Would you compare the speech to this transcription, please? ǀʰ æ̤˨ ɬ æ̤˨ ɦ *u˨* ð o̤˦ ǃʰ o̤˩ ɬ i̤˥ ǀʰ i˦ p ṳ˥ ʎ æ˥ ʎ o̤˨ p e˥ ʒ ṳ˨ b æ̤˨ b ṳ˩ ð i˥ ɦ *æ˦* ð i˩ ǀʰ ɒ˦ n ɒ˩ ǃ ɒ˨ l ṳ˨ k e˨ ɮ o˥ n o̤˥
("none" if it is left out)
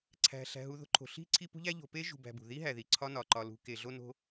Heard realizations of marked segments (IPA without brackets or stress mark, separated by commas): u˨, æ˩